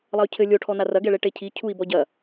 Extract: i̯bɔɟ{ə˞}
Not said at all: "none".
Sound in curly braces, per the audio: ɐ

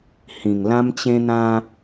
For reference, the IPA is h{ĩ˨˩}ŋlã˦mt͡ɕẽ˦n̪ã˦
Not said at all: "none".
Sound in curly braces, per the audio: ĩ˨˩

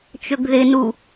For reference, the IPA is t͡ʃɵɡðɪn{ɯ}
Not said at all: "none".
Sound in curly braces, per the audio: u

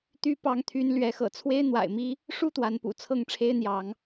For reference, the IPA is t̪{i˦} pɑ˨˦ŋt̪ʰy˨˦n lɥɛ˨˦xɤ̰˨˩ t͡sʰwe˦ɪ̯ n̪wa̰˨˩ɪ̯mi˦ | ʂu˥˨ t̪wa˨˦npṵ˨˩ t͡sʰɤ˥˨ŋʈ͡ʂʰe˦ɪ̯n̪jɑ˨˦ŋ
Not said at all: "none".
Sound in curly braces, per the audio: y˦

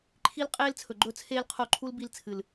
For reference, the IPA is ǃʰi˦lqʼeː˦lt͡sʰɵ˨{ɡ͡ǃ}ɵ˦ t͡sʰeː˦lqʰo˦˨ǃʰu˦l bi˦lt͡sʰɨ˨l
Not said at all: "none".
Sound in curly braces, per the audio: ɡ͡ǃ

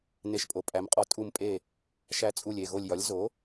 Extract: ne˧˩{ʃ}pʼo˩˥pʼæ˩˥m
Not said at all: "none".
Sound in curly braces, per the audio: ʃ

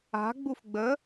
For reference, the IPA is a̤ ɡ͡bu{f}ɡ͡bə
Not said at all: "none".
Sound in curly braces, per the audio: f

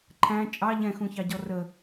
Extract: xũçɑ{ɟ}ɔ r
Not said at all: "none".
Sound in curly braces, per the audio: ɟ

